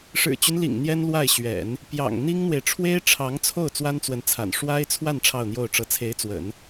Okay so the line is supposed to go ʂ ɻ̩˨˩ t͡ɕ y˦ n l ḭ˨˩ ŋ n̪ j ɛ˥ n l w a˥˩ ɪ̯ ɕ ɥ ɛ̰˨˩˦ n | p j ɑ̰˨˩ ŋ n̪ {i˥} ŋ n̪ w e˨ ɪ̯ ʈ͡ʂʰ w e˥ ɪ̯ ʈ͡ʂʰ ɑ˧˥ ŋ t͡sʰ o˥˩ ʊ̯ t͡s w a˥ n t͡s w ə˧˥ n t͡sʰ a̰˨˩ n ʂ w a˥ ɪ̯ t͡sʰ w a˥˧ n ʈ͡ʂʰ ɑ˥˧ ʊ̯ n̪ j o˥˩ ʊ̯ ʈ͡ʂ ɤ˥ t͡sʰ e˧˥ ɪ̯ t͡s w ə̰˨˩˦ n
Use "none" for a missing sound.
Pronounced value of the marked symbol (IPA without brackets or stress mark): i˥